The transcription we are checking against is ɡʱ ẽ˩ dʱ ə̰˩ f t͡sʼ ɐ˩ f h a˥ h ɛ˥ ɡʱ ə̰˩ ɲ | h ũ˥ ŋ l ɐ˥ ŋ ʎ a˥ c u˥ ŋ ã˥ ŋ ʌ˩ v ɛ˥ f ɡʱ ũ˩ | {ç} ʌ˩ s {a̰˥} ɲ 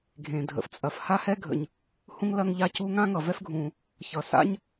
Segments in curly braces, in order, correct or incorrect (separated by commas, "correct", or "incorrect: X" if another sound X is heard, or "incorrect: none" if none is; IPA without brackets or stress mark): correct, correct